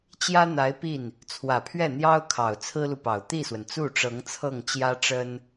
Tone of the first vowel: high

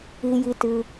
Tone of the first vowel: low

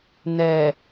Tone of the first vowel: low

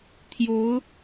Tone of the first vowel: rising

